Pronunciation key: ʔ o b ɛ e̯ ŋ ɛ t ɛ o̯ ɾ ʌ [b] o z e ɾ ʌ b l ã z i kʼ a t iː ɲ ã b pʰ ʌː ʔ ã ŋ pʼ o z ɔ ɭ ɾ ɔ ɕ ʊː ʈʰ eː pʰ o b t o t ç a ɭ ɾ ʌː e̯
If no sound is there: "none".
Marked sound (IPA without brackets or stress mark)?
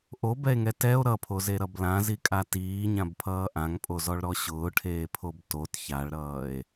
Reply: pʰ